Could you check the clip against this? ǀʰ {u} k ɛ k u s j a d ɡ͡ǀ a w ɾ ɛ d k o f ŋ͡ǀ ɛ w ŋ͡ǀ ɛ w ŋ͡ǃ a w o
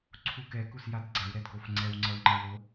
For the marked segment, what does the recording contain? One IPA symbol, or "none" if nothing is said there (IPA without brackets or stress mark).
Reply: u